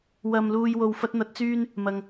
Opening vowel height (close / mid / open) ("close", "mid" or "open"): open